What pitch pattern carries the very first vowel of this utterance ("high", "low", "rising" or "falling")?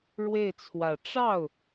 falling